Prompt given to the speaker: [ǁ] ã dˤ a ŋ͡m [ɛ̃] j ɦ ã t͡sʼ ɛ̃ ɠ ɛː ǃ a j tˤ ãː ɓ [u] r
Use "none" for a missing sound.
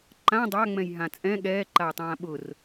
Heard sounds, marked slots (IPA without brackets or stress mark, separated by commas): ǃ, ɛ̃, ʊ